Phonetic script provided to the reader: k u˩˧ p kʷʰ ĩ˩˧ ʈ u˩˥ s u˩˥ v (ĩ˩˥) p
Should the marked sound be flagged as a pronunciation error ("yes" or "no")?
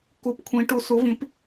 no